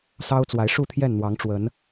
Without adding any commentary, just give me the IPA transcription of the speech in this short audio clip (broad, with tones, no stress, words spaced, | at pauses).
sɑ˦ʊ̯t͡swa˨˦ɪ̯ ʂu˥˨t̪ʰjɛ˥˨nn̪wɑ˨˦ŋʈ͡ʂwə˨˦n